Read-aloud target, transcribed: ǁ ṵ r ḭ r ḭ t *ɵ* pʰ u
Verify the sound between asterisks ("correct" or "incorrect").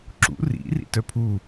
incorrect